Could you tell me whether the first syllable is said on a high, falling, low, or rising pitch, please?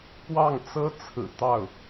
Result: falling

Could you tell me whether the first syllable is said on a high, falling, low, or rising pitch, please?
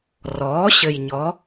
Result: rising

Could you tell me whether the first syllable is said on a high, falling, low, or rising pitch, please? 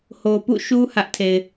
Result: low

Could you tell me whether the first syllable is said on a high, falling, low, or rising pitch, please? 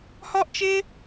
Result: high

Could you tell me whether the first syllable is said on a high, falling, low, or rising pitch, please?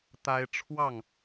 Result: high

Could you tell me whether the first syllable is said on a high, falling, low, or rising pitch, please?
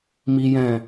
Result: high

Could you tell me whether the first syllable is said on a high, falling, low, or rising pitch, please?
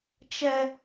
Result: high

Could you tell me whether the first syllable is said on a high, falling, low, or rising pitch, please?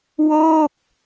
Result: falling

